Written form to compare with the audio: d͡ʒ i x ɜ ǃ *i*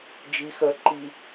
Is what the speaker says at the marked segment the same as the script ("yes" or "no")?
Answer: yes